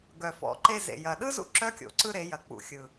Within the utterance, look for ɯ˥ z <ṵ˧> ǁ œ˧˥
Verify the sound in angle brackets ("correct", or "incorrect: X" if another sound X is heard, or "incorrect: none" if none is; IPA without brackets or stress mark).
correct